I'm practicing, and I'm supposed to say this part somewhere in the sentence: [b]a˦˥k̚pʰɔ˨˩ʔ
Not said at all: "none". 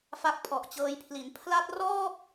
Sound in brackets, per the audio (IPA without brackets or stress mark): f